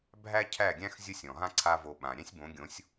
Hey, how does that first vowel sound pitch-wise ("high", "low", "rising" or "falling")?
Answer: high